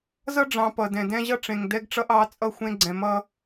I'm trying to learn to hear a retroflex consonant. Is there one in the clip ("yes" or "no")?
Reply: yes